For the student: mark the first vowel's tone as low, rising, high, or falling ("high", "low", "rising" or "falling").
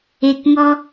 low